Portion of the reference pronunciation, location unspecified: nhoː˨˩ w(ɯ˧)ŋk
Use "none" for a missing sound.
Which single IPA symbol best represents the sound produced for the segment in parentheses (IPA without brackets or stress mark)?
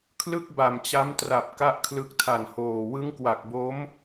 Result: ɯ˦˥